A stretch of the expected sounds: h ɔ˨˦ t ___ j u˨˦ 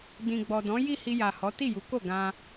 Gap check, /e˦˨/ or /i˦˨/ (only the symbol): i˦˨